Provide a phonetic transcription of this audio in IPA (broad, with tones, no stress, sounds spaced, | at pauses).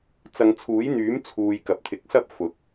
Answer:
t͡s ɐ˨˧ ŋ t͡sʰ uː˨˥ j n̪ yː˨˥ m t͡sʰ uː˧ j k ɐ˨˥ p̚ t̪ʰ ɪ˨˥ k̚ s ɐ˥ p̚ f ʊ˨˥ k̚